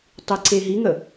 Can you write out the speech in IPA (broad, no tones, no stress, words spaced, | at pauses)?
tˤiǀeɦiŋə